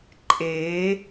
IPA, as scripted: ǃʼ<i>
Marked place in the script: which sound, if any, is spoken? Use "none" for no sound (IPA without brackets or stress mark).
e